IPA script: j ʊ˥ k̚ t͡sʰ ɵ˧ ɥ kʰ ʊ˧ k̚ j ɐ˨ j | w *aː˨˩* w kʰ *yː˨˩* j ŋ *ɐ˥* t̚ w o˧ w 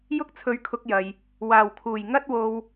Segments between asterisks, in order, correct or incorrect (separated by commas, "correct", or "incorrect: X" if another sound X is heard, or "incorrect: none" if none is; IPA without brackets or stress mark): correct, incorrect: uː˨˩, correct